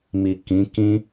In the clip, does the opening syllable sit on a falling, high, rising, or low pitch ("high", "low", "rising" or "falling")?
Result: low